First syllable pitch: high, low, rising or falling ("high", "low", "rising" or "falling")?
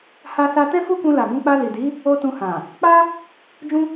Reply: high